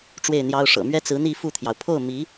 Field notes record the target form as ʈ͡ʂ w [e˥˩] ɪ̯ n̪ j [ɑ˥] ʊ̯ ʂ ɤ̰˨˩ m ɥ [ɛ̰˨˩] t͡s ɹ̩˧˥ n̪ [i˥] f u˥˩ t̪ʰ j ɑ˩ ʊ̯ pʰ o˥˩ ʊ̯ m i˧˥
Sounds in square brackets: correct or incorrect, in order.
correct, correct, incorrect: ɛ˥, incorrect: i˥˧

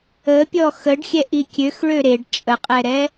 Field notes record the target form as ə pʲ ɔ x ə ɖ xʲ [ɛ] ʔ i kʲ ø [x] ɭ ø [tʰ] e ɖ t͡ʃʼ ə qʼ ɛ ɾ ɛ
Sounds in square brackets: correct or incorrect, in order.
correct, correct, incorrect: ɾ

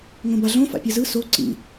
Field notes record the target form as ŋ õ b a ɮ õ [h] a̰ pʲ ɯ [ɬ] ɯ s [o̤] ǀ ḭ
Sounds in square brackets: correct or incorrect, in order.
incorrect: f, incorrect: z, incorrect: o

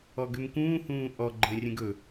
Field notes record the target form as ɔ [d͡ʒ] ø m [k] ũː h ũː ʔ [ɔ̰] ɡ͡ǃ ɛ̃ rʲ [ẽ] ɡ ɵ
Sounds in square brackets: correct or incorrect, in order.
incorrect: ɡ, correct, incorrect: ɔ, incorrect: ɛ̃

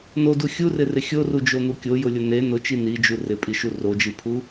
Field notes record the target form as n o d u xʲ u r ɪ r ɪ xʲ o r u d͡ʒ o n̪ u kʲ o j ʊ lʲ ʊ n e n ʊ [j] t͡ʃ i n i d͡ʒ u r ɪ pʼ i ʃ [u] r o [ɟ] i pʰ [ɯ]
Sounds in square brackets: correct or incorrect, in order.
incorrect: none, correct, incorrect: d͡ʒ, incorrect: u

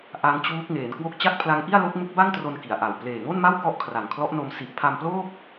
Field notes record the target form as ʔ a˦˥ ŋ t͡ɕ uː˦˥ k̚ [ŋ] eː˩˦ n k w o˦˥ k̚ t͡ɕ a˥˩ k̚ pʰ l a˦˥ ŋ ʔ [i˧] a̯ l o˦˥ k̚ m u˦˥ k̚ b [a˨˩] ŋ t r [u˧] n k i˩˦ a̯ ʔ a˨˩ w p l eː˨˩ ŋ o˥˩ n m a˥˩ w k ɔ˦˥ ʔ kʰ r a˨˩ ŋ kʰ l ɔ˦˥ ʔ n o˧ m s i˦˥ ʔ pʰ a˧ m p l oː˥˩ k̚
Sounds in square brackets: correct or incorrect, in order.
correct, incorrect: i˥˩, incorrect: a˥˩, incorrect: o˧

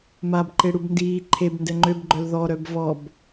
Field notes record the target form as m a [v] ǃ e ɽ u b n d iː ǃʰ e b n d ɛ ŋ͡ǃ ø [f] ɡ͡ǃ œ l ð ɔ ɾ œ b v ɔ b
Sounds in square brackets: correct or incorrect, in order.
incorrect: b, incorrect: b

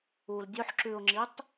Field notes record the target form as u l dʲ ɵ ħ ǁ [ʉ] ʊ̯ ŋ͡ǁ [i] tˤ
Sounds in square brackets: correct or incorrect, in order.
correct, correct

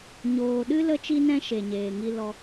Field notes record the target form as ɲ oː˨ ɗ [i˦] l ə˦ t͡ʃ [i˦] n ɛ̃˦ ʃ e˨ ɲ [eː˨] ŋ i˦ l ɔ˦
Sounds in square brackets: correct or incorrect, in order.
incorrect: ɨ˦, correct, correct

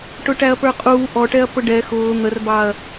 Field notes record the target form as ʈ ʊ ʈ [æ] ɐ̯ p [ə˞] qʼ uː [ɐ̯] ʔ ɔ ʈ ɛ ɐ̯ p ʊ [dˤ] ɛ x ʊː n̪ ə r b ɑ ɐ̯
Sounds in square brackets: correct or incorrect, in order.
correct, correct, incorrect: none, incorrect: ɖ

